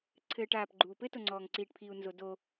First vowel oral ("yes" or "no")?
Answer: yes